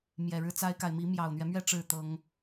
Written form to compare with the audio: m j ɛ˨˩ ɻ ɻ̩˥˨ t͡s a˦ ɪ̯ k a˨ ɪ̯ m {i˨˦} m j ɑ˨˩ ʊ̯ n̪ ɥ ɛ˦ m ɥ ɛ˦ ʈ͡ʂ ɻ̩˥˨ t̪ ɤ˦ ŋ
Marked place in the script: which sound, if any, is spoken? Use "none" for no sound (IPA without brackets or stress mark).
i˨˦